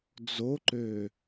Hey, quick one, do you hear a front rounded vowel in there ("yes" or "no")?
yes